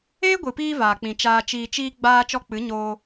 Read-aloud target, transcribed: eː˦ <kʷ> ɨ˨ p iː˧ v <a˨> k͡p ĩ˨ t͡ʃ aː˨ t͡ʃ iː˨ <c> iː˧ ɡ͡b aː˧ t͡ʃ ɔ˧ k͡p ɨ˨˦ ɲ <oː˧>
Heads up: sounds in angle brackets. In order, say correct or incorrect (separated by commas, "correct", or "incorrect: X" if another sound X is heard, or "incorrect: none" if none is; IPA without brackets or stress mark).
incorrect: ɡʷ, incorrect: aː˨, incorrect: t͡ʃ, correct